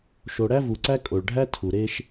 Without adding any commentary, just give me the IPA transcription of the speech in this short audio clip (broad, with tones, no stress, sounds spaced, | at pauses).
ʃ o˨ ɽ æ˦ v u˨ ǀ æ˦ kʼ o˨ ɭ ɖʱ æ˦ tʰ u˨ ɾ e˦ ʃ